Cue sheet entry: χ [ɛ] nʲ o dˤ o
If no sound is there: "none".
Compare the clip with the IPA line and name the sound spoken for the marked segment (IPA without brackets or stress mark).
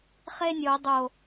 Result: e